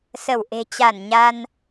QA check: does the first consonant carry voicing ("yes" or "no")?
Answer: no